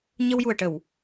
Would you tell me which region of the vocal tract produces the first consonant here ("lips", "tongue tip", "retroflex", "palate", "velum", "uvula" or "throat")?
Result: palate